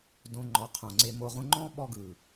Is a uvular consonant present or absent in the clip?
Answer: present